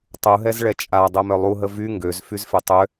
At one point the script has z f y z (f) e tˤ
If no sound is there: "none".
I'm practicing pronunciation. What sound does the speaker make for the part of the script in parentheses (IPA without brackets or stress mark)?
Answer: f